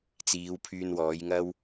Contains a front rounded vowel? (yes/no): yes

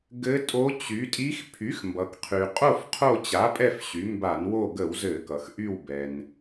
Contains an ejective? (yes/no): yes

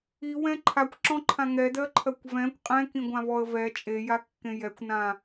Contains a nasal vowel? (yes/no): yes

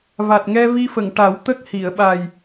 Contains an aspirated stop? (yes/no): no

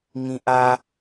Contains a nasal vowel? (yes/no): yes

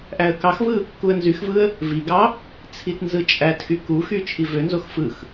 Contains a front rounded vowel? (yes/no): yes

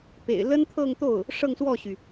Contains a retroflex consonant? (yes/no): yes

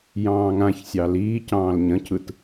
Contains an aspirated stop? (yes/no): yes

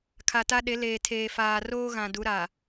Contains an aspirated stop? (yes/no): yes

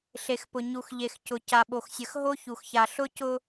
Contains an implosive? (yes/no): yes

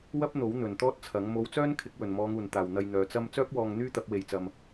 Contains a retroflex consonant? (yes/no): no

